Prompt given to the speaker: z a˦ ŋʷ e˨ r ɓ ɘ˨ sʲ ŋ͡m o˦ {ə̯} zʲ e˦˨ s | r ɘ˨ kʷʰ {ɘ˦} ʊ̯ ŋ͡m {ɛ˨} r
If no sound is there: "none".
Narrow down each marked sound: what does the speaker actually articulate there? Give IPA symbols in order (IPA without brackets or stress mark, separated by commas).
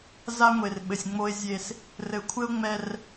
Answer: ɪ̯, ɘ˦, ɛ˨